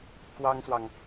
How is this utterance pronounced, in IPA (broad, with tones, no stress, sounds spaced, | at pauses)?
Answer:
k w ɑ˥ ŋ s w ɑ˨ ŋ